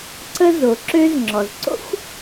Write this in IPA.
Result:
ǀə˦zo˩ǁø˦z ŋ͡ǁɔ˩zǀo̰˥xʷ

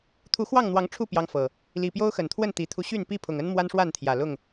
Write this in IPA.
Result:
t̪ʰu˨˦xwɑ˥˨ŋn̪wɑ˨˦ŋ ʈ͡ʂʰu˥˨ pjɑ˦ŋfɤ˨˩ | li˨˩pjo˦ʊ̯xə˨˩nt̪ʰwə˥˨n t̪i˨˩t̪ʰu˦ɕy˥˨n pi˥˨pʰʊ˨˩ŋə˦n mwa˦nʂwa˥˨nt̪ʰjä˨˩lʊ˥˨ŋ

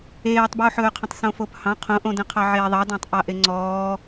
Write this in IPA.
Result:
eːtˤbuːħɵːqʰə̃tˤ sõfophɑ̃ qʰõʔõdə̃qʰɑ ʕeːðˤɑdɑ̃tˤʔɑ ʔeŋ͡ǀɔː

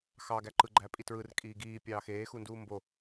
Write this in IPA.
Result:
xɑɡæ ǃɯɡ͡ǃæpʼi tɹɯr kʼiːɡiːpʲɑː xeːxu nduːmbo

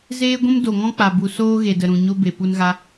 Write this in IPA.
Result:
zeː˦ɡʷũ˦m do˨ŋɔ̃˦k͡pa˨bu˨ soː˦ɣe˨də˨ ɾũ˨ ɲo˦ be˨pu˧nɣa˧

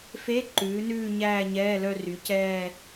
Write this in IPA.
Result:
fe˧˥˧ ǃʉː˩˥nʉː˥˧ ɲæː˥˧ɲɛː˧˥˧lœ˥˧ry˩˥ cɛː˥˧

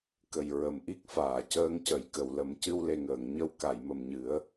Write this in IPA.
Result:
kə˨˩j ɹə˨˩˨mʔi˦˥k̚faː˨˩˨ cəː˧˥ŋcə˨˩˦j kə˨˩˨wlə˨˩˦mcɨ˧w le˨˩ŋəː˨˩˨ŋ ɲə˧w ka˨˩˨jmə˨˩mɲɨ˨˩˦ə̯

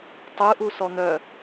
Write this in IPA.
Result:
tˤɯʔu sɔn̪œ

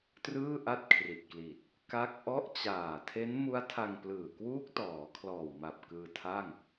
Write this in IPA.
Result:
trɯː˥˩ ʔa˥˩t̚kʰri˨˩t̚kli˨˩t̚ | ka˥˩k̚ ʔɔ˦˥ʔt͡ɕaː˨˩tʰe˦˥n mu˦˥a̯tʰa˧ŋplɯː˨˩ kwuː˦˥k̚tɔː˩˦kʰlɔː˨˩wma˨˩p̚ kɯː˧tʰa˥˩ŋ

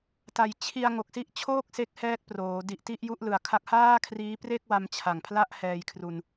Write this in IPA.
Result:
ta˨˩jt͡ɕʰi˧a̯ ŋo˨˩k̚si˦˥ʔt͡ɕʰoː˥˩k̚ se˦˥k̚hɛː˦˥k̚proː˩˦ di˨˩ʔ ti˥˩ʔju˥˩ʔlɯ˨˩a̯kʰa˥˩k̚ haː˥˩kʰriː˦˥pre˥˩k̚wa˧m t͡ɕʰa˨˩ŋpʰla˥˩ʔ hɛː˧jkʰru˧n

